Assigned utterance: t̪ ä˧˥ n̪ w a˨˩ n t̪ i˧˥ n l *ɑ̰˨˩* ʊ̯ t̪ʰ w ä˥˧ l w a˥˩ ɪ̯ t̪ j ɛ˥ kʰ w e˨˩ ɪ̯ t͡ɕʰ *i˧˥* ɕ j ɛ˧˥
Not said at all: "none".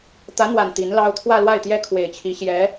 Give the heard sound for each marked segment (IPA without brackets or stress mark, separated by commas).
ɑ˥, i˧˥